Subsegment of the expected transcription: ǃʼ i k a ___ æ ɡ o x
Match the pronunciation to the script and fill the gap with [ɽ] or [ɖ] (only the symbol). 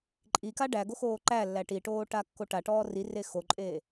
ɖ